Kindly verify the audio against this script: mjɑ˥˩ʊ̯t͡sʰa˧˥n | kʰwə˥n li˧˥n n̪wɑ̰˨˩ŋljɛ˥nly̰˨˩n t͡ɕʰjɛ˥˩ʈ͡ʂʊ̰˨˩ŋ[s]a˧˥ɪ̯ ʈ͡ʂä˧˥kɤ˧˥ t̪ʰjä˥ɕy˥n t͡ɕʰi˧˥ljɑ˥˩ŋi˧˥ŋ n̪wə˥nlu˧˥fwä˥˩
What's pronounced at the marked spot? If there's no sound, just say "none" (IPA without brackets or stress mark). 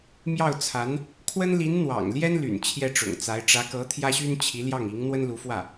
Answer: t͡s